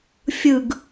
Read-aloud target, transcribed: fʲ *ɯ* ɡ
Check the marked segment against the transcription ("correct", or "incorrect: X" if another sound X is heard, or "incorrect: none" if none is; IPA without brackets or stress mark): correct